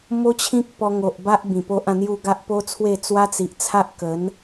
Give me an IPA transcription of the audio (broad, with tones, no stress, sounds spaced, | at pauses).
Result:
m o˦ t͡ɕʰ ĩ˦ k̚ p ɔ˧ ŋ o˨ ʔ b a˦ ʔ b ĩ˨˩ p o˦ ʔ ã˥˧ n̪ j u˥˧ ɡ a˦ ʔ p o˦ t͡sʰ w e˥˧ t͡s w a˦ t͡s i˨ ʔ t͡sʰ a˦ ʔ k ə˨˦ n